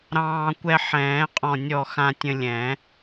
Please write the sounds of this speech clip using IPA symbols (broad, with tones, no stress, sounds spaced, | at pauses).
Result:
ɾ ɑ̃ː˧ kʷ ɛ˧ ħ ɛ̃ː˨˩˦ qʼ ɔ̃˧˩ nʲ ɔ˧˩ x ã˧ tʲ ə̃˧ lʲ ɛ̃˨˩˦